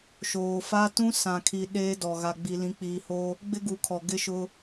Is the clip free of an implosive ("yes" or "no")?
no